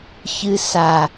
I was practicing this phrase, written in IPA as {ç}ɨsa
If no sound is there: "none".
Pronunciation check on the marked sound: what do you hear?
ç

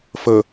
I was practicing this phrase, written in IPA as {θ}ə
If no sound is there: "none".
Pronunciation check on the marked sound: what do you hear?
f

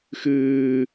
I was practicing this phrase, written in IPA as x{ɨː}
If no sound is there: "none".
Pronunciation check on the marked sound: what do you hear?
ɨː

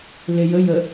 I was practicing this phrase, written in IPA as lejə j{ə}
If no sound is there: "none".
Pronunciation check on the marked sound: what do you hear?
ə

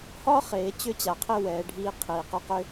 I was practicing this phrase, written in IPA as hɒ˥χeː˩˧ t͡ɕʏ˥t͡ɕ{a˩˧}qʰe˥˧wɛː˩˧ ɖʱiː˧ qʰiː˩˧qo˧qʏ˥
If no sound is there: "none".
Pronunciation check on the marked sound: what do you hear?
a˩˧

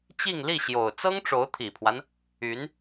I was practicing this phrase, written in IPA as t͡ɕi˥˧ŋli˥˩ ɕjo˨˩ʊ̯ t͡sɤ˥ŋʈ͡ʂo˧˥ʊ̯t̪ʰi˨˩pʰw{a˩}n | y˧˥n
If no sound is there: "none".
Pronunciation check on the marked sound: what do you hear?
a˦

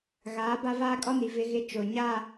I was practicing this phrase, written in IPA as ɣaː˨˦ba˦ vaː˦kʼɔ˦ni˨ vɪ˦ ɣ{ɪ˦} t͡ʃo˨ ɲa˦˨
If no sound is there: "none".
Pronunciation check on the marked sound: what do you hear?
ɪ˦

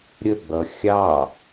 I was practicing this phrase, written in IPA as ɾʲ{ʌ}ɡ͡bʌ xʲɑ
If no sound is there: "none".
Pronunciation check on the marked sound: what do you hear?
ə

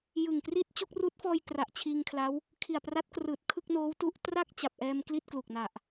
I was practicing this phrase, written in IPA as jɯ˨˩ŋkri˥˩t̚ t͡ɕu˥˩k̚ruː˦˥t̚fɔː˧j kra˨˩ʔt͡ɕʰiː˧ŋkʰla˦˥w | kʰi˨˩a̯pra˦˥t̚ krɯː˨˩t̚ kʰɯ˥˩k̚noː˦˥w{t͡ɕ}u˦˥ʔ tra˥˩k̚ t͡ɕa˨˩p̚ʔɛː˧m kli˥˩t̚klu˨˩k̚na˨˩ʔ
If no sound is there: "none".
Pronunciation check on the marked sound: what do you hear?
t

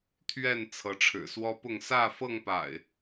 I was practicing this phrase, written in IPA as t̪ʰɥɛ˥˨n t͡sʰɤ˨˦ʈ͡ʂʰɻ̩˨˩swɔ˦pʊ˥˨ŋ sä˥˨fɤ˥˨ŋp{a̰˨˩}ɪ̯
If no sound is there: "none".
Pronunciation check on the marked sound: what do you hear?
a̰˨˩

